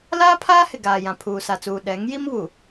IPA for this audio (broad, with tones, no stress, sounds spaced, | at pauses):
l aː˦ pʰ aː˦ h ɪ˨ ɡ aː˨ j ã˨ pʰ uː˨ s a˨ t͡s uː˨ ɗ ɛ˨˦ ŋ j i˦ m β u˨